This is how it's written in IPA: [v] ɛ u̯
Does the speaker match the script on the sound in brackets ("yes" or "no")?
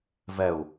yes